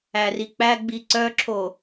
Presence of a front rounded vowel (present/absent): present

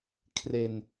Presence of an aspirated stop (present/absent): present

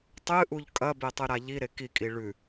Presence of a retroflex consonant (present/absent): present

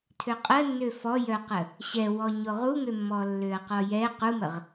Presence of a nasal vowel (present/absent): absent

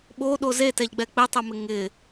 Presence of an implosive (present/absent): present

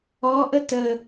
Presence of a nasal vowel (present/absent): absent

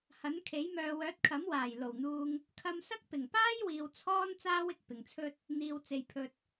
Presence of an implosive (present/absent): absent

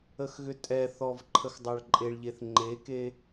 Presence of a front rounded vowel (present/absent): present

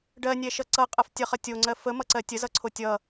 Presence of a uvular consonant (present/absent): present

